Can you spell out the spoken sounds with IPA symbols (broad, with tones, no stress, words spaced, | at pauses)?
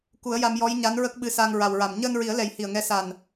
ku˨˩˦ə̯ja˧m jɔ˧˥jɲa˧˥n ɹə˦˥k̚ɓɨ˧˥sa˧ŋ ɹa˨˩wɹa˨˩m ɲəː˧nɹi˨˩˦ə̯lɛ˨˩˦j hi˨˩ə̯ŋɛ˧˥sa˨˩n